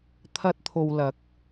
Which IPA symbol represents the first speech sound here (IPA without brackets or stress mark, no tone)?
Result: t̪ʰ